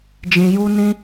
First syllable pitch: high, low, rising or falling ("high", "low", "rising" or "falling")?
low